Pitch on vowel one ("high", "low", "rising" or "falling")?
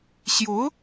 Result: rising